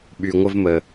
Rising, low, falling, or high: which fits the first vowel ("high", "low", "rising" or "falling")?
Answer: low